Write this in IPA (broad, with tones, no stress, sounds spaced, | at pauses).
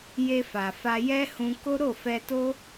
j e˧ f a˨ f a˧ j ɛ˦ h ũ˧ k o˦ ɾ o˦˨ f ɛ˧ t o˦